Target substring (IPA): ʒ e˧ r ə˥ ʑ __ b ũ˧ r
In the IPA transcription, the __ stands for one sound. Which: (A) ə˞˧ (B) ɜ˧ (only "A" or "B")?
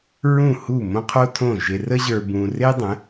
A